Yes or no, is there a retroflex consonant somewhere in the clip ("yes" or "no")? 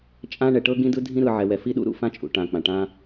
yes